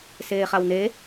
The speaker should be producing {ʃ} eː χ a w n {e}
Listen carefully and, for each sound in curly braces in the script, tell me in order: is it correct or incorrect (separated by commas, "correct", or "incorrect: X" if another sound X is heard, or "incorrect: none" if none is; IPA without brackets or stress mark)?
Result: incorrect: s, correct